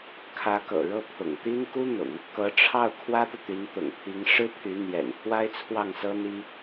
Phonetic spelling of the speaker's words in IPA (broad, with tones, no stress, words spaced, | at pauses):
kʰä˧˥kɤ̰˨˩ɻɤ˥˩ pʰʊ̰˨˩ŋt̪i˥n ku˥n̪ʊ̰˨˩˦ŋ | kɤ˧˥ʈ͡ʂʰɑ˥˩ʊ̯ kʰwä˥t̪ɤ˨t̪y˧˥n t̪ʊ̰˨˩ŋpʰi˧˥ŋ ʂɻ̩˥pʰy˧˥ n̪jɛ̰˨˩npʰwa˥ɪ̯t͡sʰwɑ˥˩ŋsɤ˥ n̪i˥